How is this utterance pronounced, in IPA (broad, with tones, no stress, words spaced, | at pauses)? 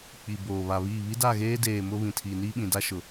k͡pi˨boː˨βa˨βiː˦˨ βi˦da˦˨ɣeː˦deː˨ mʊ˦βĩ˨tʰiː˨ niː˦ɓĩ˨da˦ ʃʊ˨